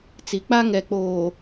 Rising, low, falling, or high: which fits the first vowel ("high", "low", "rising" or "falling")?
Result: low